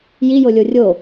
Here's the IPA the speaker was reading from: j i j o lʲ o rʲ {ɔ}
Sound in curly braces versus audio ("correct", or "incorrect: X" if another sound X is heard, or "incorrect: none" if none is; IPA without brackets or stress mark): incorrect: o